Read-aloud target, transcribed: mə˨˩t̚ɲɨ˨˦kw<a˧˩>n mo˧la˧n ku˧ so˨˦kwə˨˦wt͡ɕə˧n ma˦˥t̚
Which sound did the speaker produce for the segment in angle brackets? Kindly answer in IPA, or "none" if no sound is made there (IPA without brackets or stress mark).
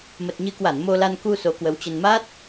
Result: a˧˩